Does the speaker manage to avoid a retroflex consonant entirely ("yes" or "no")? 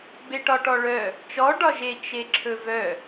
no